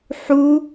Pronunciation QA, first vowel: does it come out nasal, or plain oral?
oral